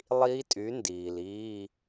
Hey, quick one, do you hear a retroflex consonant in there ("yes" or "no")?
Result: no